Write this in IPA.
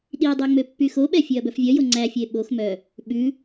ɗ i dˤ i ŋ͡m ø pː y x o ɓ ɛ fʲ ø ɐ̯ b œ f vʲ œ j o ŋ͡ǀ æ fʲ e ɓ o x m œ | ɓ ʉ

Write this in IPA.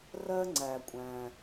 r ɜ˧ ŋ͡ǀ æ˩ kʷʼ æ̃˩

